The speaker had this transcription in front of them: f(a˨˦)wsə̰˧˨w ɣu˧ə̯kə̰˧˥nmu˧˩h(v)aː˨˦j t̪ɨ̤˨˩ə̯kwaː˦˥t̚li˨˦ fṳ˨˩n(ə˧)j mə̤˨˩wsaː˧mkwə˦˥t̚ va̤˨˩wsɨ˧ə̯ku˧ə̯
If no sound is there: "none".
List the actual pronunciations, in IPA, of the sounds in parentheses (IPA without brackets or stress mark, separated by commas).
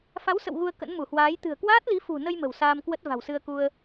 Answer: a˨˦, w, ə˧